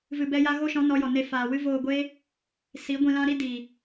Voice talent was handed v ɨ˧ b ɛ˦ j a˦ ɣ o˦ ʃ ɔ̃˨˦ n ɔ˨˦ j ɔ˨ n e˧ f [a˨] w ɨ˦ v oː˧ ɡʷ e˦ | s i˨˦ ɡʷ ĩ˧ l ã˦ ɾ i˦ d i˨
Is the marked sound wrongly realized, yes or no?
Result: yes